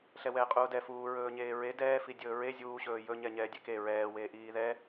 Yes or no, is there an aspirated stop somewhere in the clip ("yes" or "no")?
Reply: no